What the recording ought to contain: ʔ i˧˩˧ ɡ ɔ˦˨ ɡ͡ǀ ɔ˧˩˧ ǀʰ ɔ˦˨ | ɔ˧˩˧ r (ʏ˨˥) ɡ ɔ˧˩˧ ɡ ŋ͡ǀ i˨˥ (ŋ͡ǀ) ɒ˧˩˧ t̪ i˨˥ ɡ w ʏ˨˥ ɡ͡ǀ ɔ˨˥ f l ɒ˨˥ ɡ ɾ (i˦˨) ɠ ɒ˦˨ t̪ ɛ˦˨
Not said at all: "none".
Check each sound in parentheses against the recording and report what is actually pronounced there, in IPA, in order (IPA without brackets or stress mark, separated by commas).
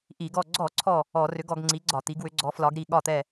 ʏ˨˥, ɡ͡ǀ, i˦˨